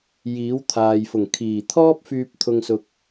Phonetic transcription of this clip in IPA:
j iː˨˥ w t̪ʰ aː˨ j f ʊ˨˩ ŋ kʰ iː˨˩ t̪ʰ ɔː˥ p̚ f yː˧ p̚ t̪ʰ ʊ˧ ŋ s ʊ˧ k̚

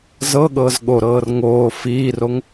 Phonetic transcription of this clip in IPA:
z ɤ ɠ ɤː z ɠ o ɾ ɤː r ŋ oː f iː r o ŋ

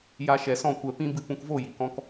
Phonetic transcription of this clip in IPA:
j a˧ ʃ ɛ˨ s ɔ̃˦˨ kʷ ɛ˧ p ĩ˦ b ɨ˧ p ũ˧ k v o˦˨ j i˨ k ɔ̃˧ k

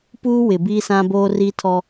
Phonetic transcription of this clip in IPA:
p uː˦ w ɪ˨ b iː˦ s ã˦ b oː˦ r i˦ tʰ ɔ˦

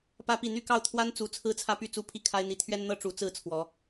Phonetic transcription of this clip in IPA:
p ä˦ p i˥˨ n̪ y˥˨ k ɑ˥˨ ʊ̯ t̪ʰ w a˦ n t͡s u˨˦ t͡sʰ ɹ̩˦ t͡sʰ ä˦ p y˥˨ t͡s u˥˨ pʰ i˥˨ kʰ a˦ ɪ̯ n̪ i˨˦ t̪ʰ ɥ ɛ˦ n n̪ ɤ˦ ʈ͡ʂ u˨˦ t͡s ɹ̩˥˨ t͡sʰ w ɔ˨˦

